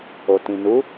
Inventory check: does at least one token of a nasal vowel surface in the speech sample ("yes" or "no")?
yes